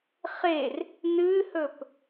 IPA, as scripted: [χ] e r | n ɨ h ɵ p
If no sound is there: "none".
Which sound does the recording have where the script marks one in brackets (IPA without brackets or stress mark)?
χ